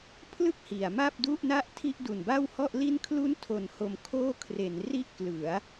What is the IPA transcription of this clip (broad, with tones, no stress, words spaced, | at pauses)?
pʰlɯ˥˩k̚ hi˩˦a̯ ma˥˩p̚du˥˩ʔna˥˩ʔtʰi˥˩ʔ du˨˩nba˥˩whɔ˥˩ʔli˥˩n kʰlu˦˥ntʰo˨˩n ho˧mkʰoː˥˩ kʰre˩˦n ri˥˩ʔklɯ˩˦a̯